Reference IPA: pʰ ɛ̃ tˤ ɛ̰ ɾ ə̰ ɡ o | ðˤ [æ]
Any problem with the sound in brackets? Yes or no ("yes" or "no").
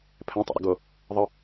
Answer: yes